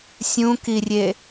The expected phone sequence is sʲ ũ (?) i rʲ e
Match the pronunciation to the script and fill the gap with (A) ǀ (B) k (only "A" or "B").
B